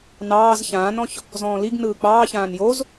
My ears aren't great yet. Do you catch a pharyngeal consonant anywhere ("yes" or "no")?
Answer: no